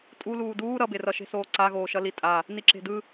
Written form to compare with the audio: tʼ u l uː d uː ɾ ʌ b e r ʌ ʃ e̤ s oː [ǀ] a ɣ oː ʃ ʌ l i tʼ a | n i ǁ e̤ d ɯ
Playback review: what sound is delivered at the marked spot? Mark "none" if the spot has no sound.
ǀ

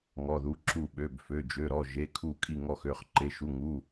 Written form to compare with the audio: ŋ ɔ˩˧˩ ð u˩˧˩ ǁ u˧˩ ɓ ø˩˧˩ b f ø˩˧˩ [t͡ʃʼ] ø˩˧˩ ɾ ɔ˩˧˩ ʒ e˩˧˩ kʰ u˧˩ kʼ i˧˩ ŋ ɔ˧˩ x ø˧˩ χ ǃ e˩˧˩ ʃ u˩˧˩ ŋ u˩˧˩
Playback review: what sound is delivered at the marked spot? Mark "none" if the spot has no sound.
d͡ʒ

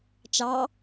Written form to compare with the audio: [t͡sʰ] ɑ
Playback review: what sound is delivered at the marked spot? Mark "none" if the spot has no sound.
t͡ʃ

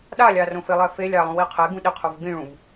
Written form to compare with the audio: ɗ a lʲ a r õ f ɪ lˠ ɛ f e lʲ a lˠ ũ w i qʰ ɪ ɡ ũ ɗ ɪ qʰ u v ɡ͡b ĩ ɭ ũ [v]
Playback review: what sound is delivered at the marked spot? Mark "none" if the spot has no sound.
v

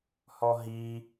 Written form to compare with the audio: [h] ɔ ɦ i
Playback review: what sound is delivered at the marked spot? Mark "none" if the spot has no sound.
h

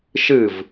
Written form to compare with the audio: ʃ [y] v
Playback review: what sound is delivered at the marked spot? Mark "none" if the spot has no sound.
ɨ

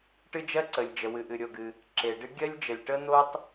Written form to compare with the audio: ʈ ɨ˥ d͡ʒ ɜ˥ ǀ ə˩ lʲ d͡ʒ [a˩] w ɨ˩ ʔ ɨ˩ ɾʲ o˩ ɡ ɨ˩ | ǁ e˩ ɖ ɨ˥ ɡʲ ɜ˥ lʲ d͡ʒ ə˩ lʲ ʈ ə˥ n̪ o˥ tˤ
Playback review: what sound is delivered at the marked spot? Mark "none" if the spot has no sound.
ə˩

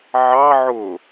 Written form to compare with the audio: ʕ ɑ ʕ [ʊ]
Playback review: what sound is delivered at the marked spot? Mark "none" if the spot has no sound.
ʊ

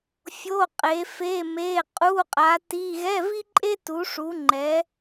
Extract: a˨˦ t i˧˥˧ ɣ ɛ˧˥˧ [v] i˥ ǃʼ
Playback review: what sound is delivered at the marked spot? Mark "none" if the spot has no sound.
v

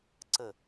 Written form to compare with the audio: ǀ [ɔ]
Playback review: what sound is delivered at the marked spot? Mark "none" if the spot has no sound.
ə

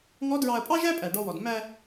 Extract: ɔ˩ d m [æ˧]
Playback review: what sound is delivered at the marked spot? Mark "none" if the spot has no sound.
æ˧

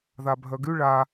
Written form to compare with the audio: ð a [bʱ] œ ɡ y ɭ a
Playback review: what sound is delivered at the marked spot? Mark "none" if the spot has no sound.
bʱ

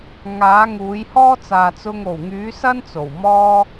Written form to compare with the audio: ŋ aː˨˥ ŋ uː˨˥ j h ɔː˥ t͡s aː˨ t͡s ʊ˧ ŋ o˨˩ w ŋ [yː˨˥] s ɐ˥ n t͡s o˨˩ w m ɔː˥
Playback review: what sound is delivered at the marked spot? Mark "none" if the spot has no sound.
yː˨˥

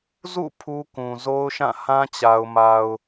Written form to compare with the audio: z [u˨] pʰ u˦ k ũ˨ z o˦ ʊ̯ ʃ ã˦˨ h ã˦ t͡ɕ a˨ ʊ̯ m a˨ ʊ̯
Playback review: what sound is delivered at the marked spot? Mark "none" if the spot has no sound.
ṵ˦˨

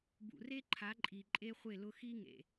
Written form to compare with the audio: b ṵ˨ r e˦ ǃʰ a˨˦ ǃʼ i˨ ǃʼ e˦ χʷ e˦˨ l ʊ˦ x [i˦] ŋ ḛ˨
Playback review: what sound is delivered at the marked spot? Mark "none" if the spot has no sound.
i˦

